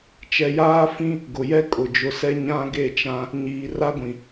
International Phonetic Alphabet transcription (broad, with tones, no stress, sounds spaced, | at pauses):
t͡ʃ ɛ˨ j aː˦ f ĩ˦ | ɡ ʊ˨ j ɛ˦ kʼ ʊ˨ d͡ʒ ʊ˨ s ɛ˦ ɲ ã˦ ɡ e˦˨ t͡ʃ ã˦ | ɲ iː˨ r a˦ ɡʷ ĩ˨